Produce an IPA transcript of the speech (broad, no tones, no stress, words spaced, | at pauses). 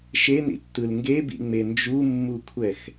ʃenḭtːɯl ŋɡebḭŋ͡me nd͡ʒumːukʷʰɛx